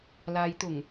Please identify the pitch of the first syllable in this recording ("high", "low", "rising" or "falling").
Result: low